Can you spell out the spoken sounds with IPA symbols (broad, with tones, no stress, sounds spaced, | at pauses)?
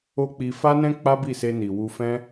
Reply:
o˦ k͡p i˧ f a˦ n ɛ̃˦ k͡p a˦ b i˦˨ s e˧ n i˨ w u˧ f ɛ̃˦